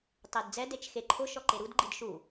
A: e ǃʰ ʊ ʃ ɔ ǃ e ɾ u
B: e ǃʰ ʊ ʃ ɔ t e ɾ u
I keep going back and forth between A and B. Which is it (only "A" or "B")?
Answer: A